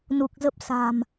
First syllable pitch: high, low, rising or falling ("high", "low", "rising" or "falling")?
low